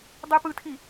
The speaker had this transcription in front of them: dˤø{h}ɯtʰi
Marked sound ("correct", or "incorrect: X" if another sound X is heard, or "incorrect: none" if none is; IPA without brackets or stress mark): incorrect: p